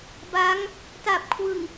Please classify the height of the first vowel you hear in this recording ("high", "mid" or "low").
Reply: low